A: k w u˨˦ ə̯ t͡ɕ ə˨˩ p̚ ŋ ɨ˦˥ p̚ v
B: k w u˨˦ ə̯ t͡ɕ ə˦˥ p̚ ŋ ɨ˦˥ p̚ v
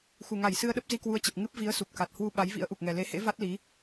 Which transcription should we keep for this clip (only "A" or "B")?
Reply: A